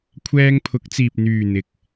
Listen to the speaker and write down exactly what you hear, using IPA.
kʷʰ ɛː˧ ŋ pʰ ʊ˨˥ k̚ t͡s iː˨ p̚ n̪ yː˨ n̪ ɪ˨ k̚

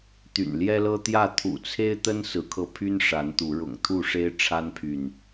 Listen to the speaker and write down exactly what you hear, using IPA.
t̪ y̰˨˩ n l j ɛ˦ l ɤ˦ t̪ j ä˥˨ t̪ʰ ṵ˨˩ t͡sʰ e˦ ɪ̯ t̪ ə˦ n s ɹ̩˨˦ kʰ ɤ˧ pʰ y˦ n ʂ a˨˦ n t̪ u˨˦ ɻ ʊ̰˨˩ ŋ t̪ʰ u˥˨ ʂ e˦ ɪ̯ ʈ͡ʂʰ a˦ n pʰ y˨ n

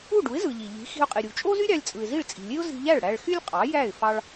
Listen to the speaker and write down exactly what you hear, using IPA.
u˥˩ ɖ u˩˥ ɪ̯ z ɯ˩ ʎ i˩ ʎ i̤˩˥ x i̤˧ ʊ̯ qʼ i˩ ɾʲ u˩ t͡ʃʼ o˥ z y˥ ɾʲ ɑ˧ lʲ t͡sʼ ɯ˩ ɪ̯ z i˥˩ ɭ t͡sʼ i̤˩ lʲ e˥ ʊ̯ z i̤˧ ʎ æ˥˩ ɭ ɽ æ˧ ɭ x y˥ lʲ qʼ ɑ˩˥ j æ˥˩ ɪ̯ f ɑ˧ ɭ

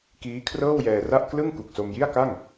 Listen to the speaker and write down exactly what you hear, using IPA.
k iː˦˥ kʰ r ɤː˥˩ w j ɛː˧ r a˥˩ ʔ k l ɯ˥˩ ŋ k u˨˩ k̚ s o˧ m j i˥˩ a̯ k a˥˩ ŋ

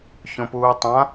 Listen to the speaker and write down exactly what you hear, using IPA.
ç õ p uː tˤ ã

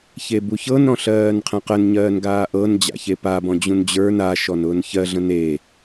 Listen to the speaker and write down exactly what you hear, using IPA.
ç e b u ç ɤ n ɾ ɔ̃ ɬ ɜː n qʰ ə̃ q ə n ɲ ɜː n ɡ aː ʔ ɤ n d͡ʑ a̰ ç e p a b ɔ̃ d͡ʑ ũ n d͡ʑ ə˞ n a ʃ ɔ n ʊː n ç ɜ ɮ ə̃ n e

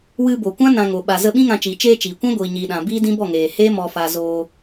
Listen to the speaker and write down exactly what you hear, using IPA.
w ɨ˧ b o˨ kʷ ã˦ n ã˧ ŋ o˨ ɓ a˨ z ə˧ ɓ ĩ˦ ŋ ã˧ t͡ʃ iː˨ t͡ʃ eː˧ t͡ʃ iː˨ kʷ ã˦ ɡʷ iː˨ ɲ iː˨ ɗ ã˨ b iː˦ d ĩ˦ b ɔ˦˨ ŋ eː˨ h eː˦ m ɔ˨ f a˨ z oː˧

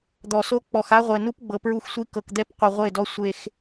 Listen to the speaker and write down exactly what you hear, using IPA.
d̪ ɔ˨ s o˦ k͡p ɔ˨ x a˦ ʁʷ ɛ˨ n u˦ p ɡ͡b ɤ˨ p ɹ u˦˨ x sʷ i˦ k ɤ˨ k d̪ ɛ˦ p qʷ ɯ˨ ʁʷ e˦˨ d ɔ˦ sʷ e˦ x

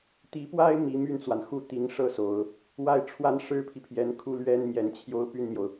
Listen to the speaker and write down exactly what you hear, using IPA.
t̪ i˧˥ p w a˥ ɪ̯ m i˧˥ m y˥˩ n t͡s w a˩ n x u˥˩ t̪ i˧˥ ŋ ʂ ɤ˥˩ s o˨˩˦ ʊ̯ | w a˥˩ ɪ̯ ʈ͡ʂʰ w a˥ n ʂ ɻ̩˥ pʰ i˨ pʰ j ɛ˧˥ n kʰ u˥ l ɥ ɛ˥ n m j ɛ˨˩ n t͡ɕʰ j o˥ ʊ̯ p y˥˩ n m j o˩ ʊ̯

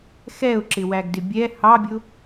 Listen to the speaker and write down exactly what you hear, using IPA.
x ɛ ʊ̯ ǁ ɪ w æ ɡ d ɪ bʲ ɛ h ɑ bʲ ʊ

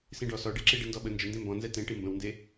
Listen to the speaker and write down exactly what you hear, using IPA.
s ĩ ɖ ɔ s ɔ ɖ e ǁ i ɖ i n d ɔ ɓ ə n d͡ʒ ə n d ẽ m b ɔ̃ n z ɛ t ẽ ʈ i m b ə̃ w n d e

